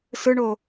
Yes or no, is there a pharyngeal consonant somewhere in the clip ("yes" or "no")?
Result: no